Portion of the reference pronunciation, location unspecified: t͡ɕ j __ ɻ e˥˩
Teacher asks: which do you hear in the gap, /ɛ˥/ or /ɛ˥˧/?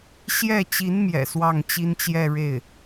ɛ˥˧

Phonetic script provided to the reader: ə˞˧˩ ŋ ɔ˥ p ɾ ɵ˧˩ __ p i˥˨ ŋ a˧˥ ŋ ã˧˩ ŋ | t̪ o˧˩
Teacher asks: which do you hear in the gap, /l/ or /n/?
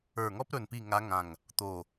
n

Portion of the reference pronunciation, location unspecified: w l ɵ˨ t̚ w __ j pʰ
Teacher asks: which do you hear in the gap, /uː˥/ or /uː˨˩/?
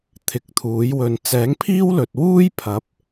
uː˥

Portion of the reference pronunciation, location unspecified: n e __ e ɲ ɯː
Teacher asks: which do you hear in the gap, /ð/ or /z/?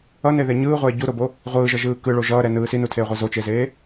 ð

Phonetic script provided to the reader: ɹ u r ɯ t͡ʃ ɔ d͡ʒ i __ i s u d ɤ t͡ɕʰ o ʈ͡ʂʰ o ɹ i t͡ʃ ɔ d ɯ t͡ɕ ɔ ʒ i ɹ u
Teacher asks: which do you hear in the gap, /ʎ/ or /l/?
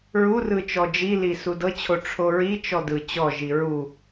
l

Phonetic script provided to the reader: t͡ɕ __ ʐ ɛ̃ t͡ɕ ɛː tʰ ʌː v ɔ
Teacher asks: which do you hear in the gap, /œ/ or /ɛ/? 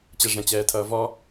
ɛ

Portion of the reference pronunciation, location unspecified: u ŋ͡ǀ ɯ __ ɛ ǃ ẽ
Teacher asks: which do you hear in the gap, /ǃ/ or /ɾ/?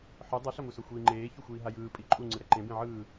ɾ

